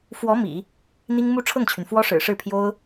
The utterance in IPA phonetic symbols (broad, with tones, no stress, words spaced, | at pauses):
fwɔ˧˥ mḭ˨˩˦ | n̪i˥ŋ mu˥˧ ʈ͡ʂʰɤ˥˩ŋt͡ɕʰy˩n fwɔ˥ʂɻ̩˨˩ ʂɻ̩˥˩pʰjo˥ʊ̯